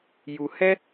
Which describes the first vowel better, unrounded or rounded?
rounded